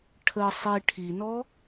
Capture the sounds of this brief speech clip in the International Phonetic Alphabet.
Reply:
ʈʰ ə sˤ i ʈʰ i n ɔ

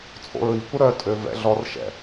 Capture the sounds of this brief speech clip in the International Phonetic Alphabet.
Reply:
t͡sʼ o̰ ɹ i kʷ ə ɾ œ tʼ ø v ɛ̰ ɮ ɔ r ʃ ɛ̰

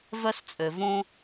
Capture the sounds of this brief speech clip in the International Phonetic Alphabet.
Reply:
v œ˦ s t͡sʼ ø˩ v õ˥

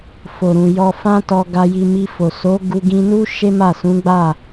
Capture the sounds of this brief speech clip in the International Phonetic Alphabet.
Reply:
f o˨ ɾ ũ˨ j ɔ˧ f ã˦ t ɔ˧ ɡ a˧ j i˧ m i˧ f o˨ s o˨˦ ɡ u˧ ɡ ĩ˧ n u˦ ʃ e˦ m a˦˨ s ũ˨˦ ɡ͡b a˦˨

